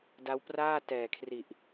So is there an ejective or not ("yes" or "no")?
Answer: no